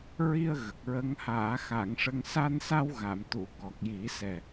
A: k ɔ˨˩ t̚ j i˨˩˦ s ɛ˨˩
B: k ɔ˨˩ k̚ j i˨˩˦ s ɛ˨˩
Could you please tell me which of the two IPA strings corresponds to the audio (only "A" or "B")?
B